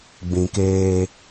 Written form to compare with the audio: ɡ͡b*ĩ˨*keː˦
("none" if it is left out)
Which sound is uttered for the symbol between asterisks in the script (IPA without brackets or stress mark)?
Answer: ĩ˨